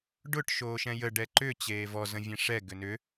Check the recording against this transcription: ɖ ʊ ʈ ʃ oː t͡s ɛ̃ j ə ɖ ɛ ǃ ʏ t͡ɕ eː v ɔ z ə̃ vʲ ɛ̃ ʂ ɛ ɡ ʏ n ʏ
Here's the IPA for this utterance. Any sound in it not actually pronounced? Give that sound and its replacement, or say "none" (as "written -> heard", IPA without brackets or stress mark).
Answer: t͡s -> ʃ